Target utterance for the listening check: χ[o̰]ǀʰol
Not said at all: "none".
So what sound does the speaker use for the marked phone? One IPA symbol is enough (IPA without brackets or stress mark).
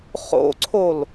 o̰